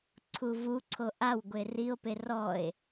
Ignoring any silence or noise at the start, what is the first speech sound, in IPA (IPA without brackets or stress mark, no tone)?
ǀʰ